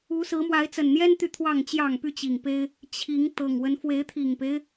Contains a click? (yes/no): no